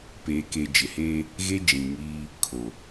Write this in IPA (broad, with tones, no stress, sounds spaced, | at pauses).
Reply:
p eː˨ k e˨ d͡ʒ ɪ˨ h eː˦ | ɣ e˦ d͡ʒ ĩ˨ ŋ iː˦ | kʰ o˨